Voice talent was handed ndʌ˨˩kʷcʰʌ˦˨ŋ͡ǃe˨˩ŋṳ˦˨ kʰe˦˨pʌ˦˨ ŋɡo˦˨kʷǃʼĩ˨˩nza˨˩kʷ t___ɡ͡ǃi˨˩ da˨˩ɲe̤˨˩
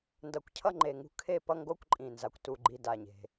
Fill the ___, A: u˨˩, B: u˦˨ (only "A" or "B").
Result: A